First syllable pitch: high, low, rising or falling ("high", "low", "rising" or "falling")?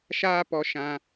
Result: high